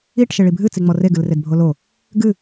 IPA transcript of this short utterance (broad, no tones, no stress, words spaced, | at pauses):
iʈ ʃeɭibʱɨ t͡siŋ͡mɔre ɡɨlredbʱolo | ɡɨ